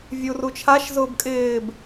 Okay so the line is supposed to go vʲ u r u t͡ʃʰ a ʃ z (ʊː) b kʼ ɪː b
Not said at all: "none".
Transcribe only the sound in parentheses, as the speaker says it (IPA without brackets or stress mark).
ʊː